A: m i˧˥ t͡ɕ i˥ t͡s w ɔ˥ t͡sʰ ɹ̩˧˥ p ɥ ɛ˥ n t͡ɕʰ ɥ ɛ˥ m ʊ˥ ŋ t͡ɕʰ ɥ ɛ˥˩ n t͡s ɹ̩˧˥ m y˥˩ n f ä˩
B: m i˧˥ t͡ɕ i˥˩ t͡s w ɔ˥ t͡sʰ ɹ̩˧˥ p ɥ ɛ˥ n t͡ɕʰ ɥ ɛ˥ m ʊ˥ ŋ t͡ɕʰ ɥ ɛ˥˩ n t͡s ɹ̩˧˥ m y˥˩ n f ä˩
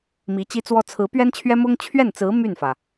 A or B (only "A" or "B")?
A